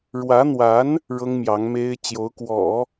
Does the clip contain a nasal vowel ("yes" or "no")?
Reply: no